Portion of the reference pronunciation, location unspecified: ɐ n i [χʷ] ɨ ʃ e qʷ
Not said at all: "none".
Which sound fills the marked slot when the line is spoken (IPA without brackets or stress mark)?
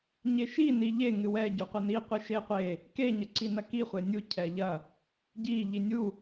qʷ